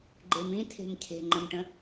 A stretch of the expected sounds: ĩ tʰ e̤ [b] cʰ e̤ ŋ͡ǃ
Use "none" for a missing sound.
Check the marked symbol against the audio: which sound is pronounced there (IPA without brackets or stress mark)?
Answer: m